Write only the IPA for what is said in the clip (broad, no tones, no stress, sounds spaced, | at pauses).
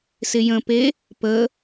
s ɪ j ə̃ p e | p ə